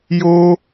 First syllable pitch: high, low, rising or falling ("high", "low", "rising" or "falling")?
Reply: high